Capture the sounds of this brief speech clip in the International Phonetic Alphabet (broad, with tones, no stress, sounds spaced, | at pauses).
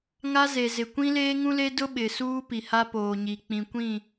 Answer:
ŋ a˦ z e˨ z ɪ˨ kʷ ĩ˦ l eː˦ ŋ ũ˦ l e˦ d ʊ˦ ɓ ɪ˨ s uː˦ p i˨ h a˦ p oː˨ ɲ i˨ k͡p ĩ˨ kʷ ĩ˦˨